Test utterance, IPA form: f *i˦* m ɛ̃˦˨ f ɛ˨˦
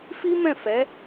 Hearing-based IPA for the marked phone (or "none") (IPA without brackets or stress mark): i˦